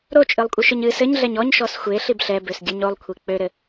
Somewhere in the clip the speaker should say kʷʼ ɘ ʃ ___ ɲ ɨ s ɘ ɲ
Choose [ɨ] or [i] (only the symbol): ɨ